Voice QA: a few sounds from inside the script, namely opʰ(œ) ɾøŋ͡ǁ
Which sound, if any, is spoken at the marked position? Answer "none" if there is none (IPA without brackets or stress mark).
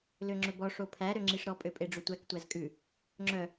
æ